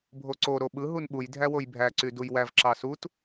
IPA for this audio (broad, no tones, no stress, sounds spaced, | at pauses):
bʱ o ǀ o ɾ o ɓ ɯ ɦ u n ɓ u j dʱ æ w o j bʱ æ ǀ y d u j w æ v ǁ ɑ s u t